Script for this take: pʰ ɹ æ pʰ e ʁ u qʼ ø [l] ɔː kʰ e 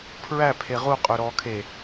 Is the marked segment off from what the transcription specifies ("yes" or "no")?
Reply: yes